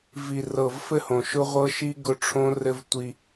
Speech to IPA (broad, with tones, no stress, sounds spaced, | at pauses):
v i˨ r ɤ˨ v f ɘ˦˨ h õ˨ ʃ ʊ˦ ʁʷ ɤ˦ ʃ i˦ ɡ ʊ˦ ʈ͡ʂʰ õ˦ r ɘ˦ v tʷ i˦